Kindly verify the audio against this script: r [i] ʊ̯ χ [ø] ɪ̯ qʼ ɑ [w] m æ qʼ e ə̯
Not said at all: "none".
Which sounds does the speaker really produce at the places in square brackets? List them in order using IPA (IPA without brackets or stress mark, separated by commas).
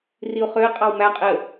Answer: i, ø, w